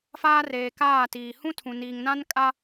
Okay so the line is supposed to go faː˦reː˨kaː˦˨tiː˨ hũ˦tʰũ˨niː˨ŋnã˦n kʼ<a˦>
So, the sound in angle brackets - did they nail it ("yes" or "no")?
yes